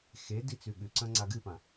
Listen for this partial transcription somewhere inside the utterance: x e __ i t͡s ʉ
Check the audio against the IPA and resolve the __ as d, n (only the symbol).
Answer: d